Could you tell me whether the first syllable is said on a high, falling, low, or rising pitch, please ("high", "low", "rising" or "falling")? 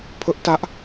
high